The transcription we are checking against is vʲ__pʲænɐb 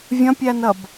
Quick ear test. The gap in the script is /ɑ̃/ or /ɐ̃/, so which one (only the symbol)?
ɐ̃